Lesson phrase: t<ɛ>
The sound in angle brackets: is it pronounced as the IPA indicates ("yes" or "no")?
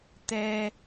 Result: yes